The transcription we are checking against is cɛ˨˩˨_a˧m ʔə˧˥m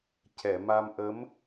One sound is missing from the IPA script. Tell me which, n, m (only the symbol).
m